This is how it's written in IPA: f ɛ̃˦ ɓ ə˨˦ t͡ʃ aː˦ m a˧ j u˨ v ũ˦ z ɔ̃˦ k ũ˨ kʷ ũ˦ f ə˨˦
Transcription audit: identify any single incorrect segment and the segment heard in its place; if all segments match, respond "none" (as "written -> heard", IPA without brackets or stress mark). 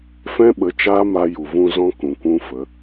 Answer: none